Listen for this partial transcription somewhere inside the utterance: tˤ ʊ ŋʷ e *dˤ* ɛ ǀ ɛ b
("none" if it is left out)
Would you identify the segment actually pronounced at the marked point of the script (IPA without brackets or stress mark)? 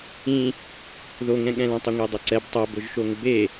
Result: dˤ